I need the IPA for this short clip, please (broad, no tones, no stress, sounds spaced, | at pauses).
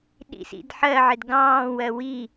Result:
ɗ ḭ s ḭ d ħ ɜ ʕ ɪ d ɡ ɑ̃ː w ɜ w i